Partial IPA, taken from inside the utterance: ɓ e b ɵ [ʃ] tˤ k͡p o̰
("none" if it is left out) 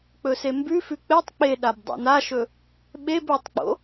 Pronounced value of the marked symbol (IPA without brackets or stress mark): none